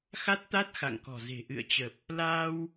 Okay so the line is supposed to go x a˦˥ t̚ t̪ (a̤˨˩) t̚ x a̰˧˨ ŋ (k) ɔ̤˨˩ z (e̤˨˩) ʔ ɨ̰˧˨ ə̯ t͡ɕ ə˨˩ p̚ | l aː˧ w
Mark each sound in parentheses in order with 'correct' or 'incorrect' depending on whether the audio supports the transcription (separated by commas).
incorrect, correct, correct